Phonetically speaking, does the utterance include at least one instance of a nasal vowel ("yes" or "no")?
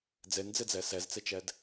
no